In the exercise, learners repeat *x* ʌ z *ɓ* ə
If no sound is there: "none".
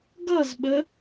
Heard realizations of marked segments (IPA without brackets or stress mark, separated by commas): ɡ, ɓ